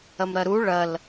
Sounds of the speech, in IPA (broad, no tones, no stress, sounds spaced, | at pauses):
ɐ m ɾ ɐ ɾ u ɭ ɐ l